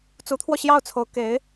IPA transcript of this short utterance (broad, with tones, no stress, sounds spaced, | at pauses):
t͡s u˧˥ t̪ʰ w ɔ˧ ɕ j ɑ˥˩ ʊ̯ t͡sʰ o˧˥ ʊ̯ k e˧˥ ɪ̯